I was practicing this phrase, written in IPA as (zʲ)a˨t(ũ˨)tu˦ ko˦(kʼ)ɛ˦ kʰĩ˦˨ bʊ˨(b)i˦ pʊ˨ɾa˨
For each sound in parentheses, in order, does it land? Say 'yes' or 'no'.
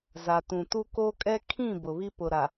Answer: no, yes, yes, no

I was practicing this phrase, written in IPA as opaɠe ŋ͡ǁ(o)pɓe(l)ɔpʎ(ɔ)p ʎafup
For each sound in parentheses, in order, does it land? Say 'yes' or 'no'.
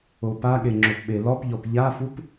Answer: yes, yes, yes

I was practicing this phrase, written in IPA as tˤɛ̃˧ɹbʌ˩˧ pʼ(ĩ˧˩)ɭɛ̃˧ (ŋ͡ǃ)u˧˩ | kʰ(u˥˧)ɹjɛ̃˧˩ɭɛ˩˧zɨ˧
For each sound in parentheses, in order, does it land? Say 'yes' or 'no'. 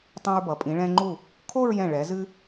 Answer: no, yes, no

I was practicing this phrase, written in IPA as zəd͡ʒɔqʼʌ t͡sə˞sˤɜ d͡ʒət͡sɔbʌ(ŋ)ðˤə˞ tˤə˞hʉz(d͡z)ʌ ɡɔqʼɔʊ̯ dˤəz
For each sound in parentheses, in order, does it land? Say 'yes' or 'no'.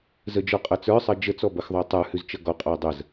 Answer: no, no

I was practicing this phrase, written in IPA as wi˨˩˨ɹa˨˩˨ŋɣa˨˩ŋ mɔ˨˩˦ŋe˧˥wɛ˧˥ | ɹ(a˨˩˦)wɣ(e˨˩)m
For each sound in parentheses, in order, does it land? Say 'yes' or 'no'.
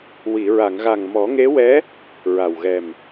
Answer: no, no

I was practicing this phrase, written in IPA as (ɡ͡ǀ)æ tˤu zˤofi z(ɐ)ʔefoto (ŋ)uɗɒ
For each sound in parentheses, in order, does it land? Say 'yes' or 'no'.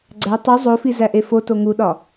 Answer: yes, no, yes

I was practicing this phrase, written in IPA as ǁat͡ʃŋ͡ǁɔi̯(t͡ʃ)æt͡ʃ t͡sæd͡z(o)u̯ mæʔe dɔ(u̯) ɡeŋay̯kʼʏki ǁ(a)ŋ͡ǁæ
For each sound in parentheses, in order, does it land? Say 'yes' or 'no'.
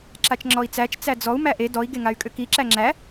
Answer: no, no, no, no

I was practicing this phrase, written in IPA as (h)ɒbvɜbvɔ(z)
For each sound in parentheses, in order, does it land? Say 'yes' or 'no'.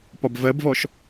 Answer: no, no

